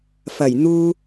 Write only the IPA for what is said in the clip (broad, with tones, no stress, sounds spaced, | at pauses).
f ɐ˨˩ j n̪ uː˧